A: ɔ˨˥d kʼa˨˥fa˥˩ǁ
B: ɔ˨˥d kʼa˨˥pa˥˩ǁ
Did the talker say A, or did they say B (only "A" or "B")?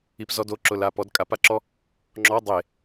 B